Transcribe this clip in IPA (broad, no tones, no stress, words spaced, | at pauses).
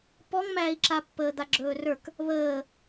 pɔŋmæːi̯ǁapːəː d̪aɡ͡ǁɵːrə˞k | βəː